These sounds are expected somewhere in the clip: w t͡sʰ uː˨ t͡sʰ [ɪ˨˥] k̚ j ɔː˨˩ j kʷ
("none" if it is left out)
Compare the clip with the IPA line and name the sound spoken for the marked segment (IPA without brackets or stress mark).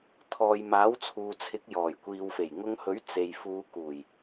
ɪ˨˥